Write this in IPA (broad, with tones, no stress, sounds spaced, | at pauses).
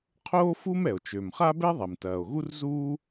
qʰ oː˥ f u˥ m ɛ˩ o̯ t͡ʃ ø˩ m χ a˥ b ɛ˥ ðˤ ɛ˩ m t ɐː˩ o̯ ɣ u˥ r z uː˥